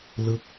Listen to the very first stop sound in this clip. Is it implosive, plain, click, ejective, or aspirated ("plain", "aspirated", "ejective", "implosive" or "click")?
plain